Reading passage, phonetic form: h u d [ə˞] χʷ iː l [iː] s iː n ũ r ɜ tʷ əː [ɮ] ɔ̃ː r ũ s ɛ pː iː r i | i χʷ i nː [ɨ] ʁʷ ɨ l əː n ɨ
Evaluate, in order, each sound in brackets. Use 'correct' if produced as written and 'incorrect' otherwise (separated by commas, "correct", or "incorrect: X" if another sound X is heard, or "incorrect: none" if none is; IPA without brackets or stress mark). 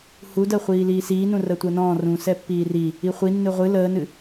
incorrect: ɜ, correct, incorrect: n, correct